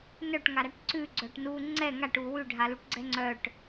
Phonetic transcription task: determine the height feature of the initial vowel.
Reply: mid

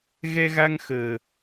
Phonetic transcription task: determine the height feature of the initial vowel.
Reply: mid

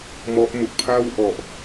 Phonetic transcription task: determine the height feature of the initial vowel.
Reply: mid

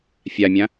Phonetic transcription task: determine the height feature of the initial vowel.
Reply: low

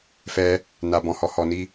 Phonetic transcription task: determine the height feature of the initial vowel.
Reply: mid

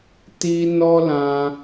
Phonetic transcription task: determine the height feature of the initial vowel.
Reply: high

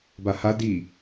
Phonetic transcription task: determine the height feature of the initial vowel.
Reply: low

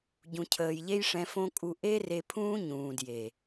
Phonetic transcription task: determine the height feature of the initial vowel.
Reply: high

